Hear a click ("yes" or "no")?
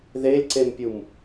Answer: yes